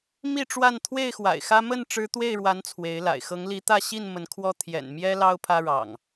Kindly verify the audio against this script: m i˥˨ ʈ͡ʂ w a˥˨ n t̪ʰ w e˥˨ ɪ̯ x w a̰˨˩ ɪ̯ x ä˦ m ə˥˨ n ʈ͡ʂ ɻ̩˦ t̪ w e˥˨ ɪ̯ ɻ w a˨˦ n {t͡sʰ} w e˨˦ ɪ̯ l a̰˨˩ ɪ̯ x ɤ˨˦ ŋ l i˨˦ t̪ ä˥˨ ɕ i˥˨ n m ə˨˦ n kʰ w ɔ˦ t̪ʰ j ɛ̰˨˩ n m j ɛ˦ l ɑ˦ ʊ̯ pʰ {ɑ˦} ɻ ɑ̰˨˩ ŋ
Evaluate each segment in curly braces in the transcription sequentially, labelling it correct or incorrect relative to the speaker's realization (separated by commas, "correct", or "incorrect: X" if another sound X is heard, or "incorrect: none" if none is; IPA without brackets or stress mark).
correct, incorrect: ä˦